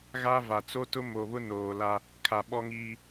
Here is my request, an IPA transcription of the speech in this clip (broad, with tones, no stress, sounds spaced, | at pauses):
ɣ a˦ v a˨ t͡s o˦ t ʊ˦ m o˨ β ʊ˦ n oː˨ l a˦ | kʰ a˨ ɓ ɔ˦ ŋ iː˦